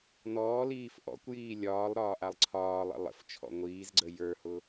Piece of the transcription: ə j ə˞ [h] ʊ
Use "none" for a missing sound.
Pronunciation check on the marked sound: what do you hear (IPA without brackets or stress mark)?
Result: h